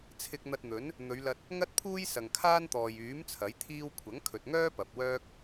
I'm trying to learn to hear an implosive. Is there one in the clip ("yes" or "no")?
no